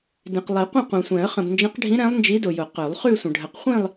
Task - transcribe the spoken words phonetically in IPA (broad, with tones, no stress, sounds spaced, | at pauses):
d ĩ˨ q lˠ i˨˩˦ qʷ ə̃˥˧ qʷ ɛ̃˨ sʷ ɛ̃˨˩˦ ə̯ χ ə̃˨ b n d͡ʒ ə̃˧˥ q ɖʱ ĩ˧˥ ɾ ɛ̃˧˥ lˠ n d͡ʒ i˧˥ d ʊ˨ j ʊ˨˩˦ q œ˨˩˦ lˠ χ ʉ˥˧ sʷ ə̃˨ ɖʱ ə˨˩˦ q χʷ ĩ˥˧ lˠ